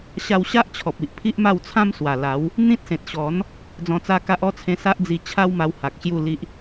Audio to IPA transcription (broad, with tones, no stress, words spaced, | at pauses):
ɕa˧wɕa˦ʔt͡ɕʰɔ˨p̚i˨ʔ pʰi˦ʔma˥˧wt͡sʰã˦m swa˨˩la˨˦w | n̪ĩ˦t̚sẽ˨t̚ ɕɔ˨˦n | d͡zɔ̃˧t͡sa˦ka˦ʔ ɔ˥˧t͡sʰẽ˧ sa˦ʔd͡zi˧t͡ɕʰa˦wma˧w ha˨k̚ɕju˥˧li˦ʔ